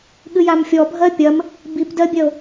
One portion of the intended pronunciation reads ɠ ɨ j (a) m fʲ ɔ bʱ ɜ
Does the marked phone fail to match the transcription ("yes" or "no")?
no